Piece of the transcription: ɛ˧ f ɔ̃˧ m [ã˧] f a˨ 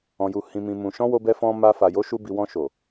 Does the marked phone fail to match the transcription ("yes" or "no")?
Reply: yes